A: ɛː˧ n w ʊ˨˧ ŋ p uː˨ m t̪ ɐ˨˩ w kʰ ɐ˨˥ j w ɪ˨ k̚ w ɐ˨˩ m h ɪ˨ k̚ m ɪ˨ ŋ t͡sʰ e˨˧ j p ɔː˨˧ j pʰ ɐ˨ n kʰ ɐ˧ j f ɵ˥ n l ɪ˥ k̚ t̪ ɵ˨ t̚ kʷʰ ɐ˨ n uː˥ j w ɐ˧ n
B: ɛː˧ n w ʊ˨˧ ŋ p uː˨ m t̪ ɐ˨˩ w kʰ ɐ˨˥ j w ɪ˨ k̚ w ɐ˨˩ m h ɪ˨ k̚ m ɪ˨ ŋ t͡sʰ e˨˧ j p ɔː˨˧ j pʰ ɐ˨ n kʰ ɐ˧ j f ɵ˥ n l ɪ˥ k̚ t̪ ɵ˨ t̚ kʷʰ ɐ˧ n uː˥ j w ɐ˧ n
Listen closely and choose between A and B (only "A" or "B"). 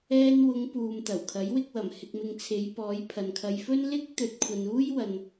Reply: B